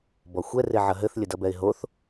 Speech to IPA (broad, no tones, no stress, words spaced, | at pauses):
bɔxʷɛ reʕɐɦɘθ lʲɘdɐbɛɪ̯ɦoθ